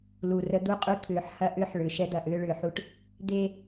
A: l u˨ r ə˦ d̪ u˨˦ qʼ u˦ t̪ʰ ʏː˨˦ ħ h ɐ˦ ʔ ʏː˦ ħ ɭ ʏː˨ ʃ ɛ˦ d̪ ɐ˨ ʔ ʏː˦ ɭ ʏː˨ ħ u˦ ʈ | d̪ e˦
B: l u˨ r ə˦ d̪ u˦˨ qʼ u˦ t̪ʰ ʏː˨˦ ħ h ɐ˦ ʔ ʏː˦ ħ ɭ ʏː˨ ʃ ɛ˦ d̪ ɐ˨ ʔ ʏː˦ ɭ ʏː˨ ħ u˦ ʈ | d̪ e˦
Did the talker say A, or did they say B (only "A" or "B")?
B